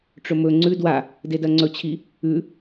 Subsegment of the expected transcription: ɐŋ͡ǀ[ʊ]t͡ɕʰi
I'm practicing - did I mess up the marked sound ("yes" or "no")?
yes